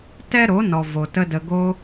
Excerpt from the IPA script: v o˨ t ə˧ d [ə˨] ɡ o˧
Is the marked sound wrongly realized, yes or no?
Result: no